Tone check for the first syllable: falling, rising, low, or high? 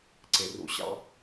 low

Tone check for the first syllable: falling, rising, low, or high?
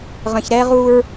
low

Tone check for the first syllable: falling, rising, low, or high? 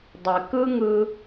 low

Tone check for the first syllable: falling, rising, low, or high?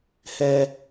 high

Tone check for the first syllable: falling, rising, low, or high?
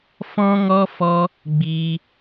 high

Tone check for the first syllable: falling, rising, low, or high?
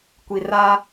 low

